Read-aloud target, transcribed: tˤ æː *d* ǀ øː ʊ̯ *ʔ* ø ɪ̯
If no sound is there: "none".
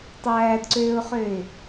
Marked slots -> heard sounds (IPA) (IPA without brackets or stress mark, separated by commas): d, χ